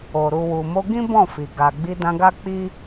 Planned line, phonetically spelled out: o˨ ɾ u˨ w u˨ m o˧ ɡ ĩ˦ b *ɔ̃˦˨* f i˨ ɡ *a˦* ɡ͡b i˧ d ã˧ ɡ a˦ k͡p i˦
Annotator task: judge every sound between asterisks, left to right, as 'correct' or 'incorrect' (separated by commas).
correct, incorrect